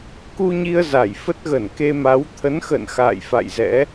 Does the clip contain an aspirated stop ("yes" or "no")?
yes